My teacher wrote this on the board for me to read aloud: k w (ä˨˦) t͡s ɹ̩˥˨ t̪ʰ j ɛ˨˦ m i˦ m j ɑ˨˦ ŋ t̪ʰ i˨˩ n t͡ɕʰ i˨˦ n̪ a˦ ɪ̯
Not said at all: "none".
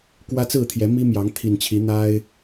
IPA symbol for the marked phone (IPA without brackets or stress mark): ä˦